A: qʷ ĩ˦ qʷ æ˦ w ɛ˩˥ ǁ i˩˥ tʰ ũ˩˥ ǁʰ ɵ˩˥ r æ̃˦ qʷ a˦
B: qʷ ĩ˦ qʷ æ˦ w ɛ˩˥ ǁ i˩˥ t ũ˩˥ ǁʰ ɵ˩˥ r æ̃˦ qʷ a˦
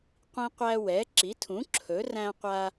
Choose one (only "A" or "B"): A